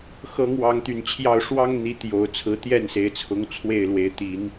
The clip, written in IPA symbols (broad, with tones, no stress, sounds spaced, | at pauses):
x ɤ˨˦ ŋ w ɑ˨˦ ŋ t̪ y˨˩ n t͡ɕʰ j ɑ˥˨ ʊ̯ ʂ w ɑ˦ ŋ n̪ i˨˦ t̪ j o˨˩ ʊ̯ t͡sʰ ɹ̩˨˦ t̪ j ɛ˥˨ n s e˨˦ ɪ̯ t͡sʰ ʊ˨˦ ŋ t͡sʰ w e˥˨ ɪ̯ l w e˨˦ ɪ̯ t̪ i˨˦ n